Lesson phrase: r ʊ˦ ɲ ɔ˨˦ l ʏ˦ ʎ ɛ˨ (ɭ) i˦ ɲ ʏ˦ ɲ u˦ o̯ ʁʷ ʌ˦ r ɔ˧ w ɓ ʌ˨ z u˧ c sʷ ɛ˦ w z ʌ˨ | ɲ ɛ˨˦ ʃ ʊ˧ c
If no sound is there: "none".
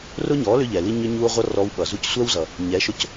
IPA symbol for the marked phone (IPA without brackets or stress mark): l